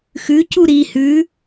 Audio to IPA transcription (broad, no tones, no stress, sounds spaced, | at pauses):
x ʉ c u ɾ i h ʉ